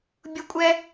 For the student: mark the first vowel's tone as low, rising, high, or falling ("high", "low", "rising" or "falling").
high